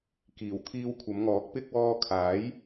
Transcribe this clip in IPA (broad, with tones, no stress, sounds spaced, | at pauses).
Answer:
k iː˨˩ w t̪ʰ iː˧ w kʷʰ ɐ˨˧ m ŋ ɔː˨˥ k̚ p ɪ˧ k̚ w ɔː˧ kʰ aː˨˥ j